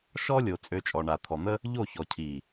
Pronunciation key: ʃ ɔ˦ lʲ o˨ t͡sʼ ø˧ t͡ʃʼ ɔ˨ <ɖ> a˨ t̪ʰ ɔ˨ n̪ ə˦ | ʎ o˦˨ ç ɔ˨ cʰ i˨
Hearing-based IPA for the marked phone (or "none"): ɳ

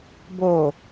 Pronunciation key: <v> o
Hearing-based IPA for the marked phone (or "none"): b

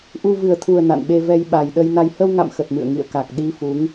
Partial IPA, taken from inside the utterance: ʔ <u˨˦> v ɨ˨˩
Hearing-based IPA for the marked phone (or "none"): u˧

